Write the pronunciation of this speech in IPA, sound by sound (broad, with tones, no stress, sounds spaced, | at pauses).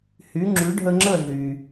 h y˩˥ ŋ͡ǁ y˩˥ ɖʱ ə˧ ŋ͡ǁ ə˥˩ ɮ y˩